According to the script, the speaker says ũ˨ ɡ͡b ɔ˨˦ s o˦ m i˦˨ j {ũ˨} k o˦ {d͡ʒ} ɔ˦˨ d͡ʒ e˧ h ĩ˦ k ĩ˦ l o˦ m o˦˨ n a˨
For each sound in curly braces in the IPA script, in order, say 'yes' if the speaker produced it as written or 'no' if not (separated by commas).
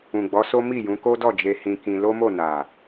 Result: no, no